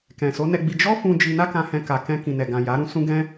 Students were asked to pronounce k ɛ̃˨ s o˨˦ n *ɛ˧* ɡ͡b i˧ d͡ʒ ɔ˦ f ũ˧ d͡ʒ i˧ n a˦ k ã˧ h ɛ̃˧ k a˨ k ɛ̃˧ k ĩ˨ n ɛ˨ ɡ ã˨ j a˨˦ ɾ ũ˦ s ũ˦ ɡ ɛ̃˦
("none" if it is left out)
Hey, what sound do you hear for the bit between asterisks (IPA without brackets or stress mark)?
ɛ˧